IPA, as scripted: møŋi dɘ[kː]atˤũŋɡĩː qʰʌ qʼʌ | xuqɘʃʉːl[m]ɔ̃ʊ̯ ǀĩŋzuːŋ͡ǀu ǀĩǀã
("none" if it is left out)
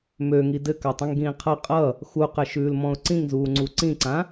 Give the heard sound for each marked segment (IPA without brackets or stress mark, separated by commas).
k, m